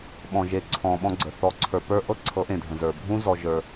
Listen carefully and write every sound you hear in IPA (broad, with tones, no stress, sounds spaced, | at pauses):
ɓ ɔ̃˨ ʒ e˨ ǀʰ ɔ̃˨ ɓ ɔ̃˦ ɡ͡ǀ ə˨ θ ɔ˨ ǀʰ ə˞˨ p ə˞˦ ʔ ɤ˦ ǀʰ ɤ˨˦ ʔ ẽ˨ dʱ ə̃˨ z ə˞˨ bʱ ũ˦ z ɔ˦ ʒ ə˞˦